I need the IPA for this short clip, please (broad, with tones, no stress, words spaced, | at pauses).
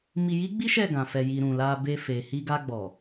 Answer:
mi˧ji˦ɡ͡bi˦ ʃɛ˦˨ɡã˨fɛ˨ji˨ ɾũ˨la˧be˧fe˨ hi˧ɡa˧ɡ͡bɔ˨